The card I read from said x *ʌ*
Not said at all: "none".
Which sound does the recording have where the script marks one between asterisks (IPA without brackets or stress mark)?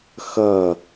ʌ